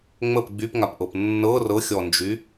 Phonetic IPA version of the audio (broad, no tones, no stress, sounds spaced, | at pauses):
ŋ͡m ə p ɡ͡b y p ŋ a p ʔ ɤ p nː ɤ r ɤ xʲ ɔ n d͡ʒ y